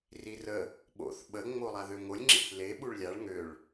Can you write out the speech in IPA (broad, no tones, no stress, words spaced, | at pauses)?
rirə | ɓo̰θ ɓə ŋ͡molˠaðøŋolʲ ŋ͡ǁḭθle ɓuɭlʲaɭ ŋøɭ